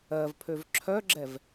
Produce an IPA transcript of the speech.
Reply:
ɜ v pʰ ø v ǁʰ œ ɡ͡ǁ ɛ v

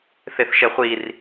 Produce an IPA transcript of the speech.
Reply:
θ e θ ʃ ɛ χʷ i r

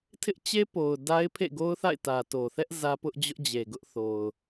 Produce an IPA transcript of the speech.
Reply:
tʰ ɪ˦ ʔ t͡ɕ e˦ p o˨ ʊ̯ d a˦ ɪ̯ pʰ ḛ˦˨ ɡ o˦ ʊ̯ θ a̰˦˨ ɪ̯ t ä˨ t o˨ θ ɛ˦ ʔ z ä˦ p ʊ˦ ʔ d͡ʑ ʊ˦ ʔ d͡ʑ e˨ ɡ ʊ˦ ʔ θ o˨ ʊ̯

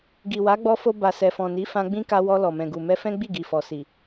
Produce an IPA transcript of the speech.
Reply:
ɡ i˨ w a˨˦ ɡ͡b ɔ˧ f o˧ b a˨ s ɛ˨ f ɔ̃˨ n i˨˦ f ã˧ ɡ͡b ĩ˦ k a˧ w ɔ˧ l ɔ˨ m ɛ̃˨ ɡ u˨ m ɛ˧ f ɛ̃˦ ɡ͡b i˦˨ ɡ i˨ f ɔ˨ s i˨

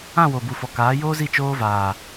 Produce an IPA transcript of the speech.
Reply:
ã˦˨ w o˨ b u˨ f ɔ˨ k aː˨˦ j oː˦ z i˦˨ t͡ʃ oː˦ v aː˨

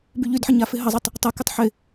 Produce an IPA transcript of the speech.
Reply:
b y ʎ y d ħ ə ɲ a f ɪ ɦ ə zˤ i tˤ | tˤ ə k ɪ tˤ ħ ɪ

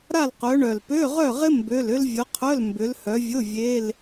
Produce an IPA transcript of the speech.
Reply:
ɾ a˥˨ l q œ˨˦ ɳ œ˨˩ l p ø˧˥˧ ʁ œ˥˨ ʁ ɪ˥ m b ø˧˥˧ l ʏ˥ l vʲ ʊ˨˦ qʰ œ˧˥˧ l m b ʏ˨˦ l h œ˨˦ vʲ ʊ˧˥˧ vʲ e˧˥˧ l

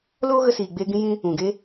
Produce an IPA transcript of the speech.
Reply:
l oː˦ ɣ ə˧ s iː˨ ɡ͡b eː˧ ɡ ĩ˦ j ĩ˦ | ũ˨ ɡ e˦

